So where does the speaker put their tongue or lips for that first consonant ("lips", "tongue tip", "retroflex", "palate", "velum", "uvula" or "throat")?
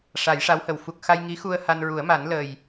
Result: retroflex